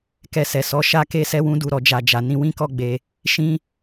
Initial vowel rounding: unrounded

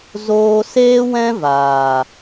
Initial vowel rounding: rounded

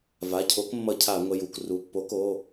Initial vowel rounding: unrounded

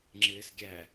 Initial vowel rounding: unrounded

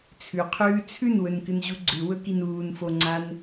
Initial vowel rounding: rounded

